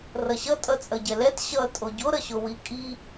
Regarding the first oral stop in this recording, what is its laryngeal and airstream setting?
ejective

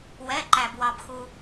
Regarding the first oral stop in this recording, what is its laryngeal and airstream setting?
click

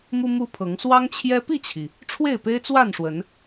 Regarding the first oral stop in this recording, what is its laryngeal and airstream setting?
aspirated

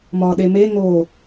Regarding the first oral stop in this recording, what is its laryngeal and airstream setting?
implosive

